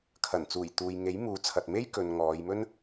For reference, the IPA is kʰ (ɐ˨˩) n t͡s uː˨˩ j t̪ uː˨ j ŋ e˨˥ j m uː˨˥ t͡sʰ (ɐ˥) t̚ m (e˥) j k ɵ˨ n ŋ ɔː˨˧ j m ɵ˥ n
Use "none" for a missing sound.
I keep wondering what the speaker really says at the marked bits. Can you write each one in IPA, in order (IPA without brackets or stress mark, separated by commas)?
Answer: ɐ˨˩, ɐ˨, e˥